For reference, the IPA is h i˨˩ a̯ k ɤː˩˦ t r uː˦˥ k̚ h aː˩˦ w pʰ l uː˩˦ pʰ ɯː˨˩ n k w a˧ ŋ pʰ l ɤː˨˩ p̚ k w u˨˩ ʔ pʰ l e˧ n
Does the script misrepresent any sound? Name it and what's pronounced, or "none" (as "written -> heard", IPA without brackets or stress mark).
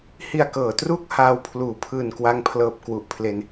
aː˩˦ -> aː˧